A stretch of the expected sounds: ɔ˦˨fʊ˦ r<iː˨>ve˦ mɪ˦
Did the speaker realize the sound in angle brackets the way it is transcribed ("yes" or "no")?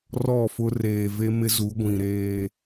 no